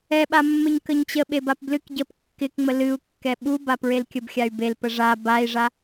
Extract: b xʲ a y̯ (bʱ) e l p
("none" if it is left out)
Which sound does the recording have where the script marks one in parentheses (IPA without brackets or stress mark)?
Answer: b